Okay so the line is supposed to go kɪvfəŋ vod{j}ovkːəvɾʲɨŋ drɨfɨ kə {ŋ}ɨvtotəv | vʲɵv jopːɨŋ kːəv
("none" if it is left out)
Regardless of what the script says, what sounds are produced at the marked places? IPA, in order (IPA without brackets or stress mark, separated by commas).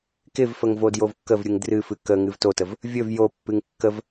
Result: j, ŋ